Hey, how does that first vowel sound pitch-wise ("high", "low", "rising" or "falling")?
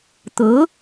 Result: rising